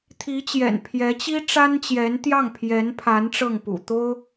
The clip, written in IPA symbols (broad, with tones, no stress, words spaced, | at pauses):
t̪ʰi˧˥t͡ɕjɛ̰˨˩n pʰjɛ˧˥t͡ɕi˥ʈ͡ʂa˥nt͡ɕjɛ˧˥n t̪jɑ˥˩ŋpʰjɛ˧˥npʰa˧˥n ʈ͡ʂɤ˥˩ŋpṵ˨˩t̪o˥ʊ̯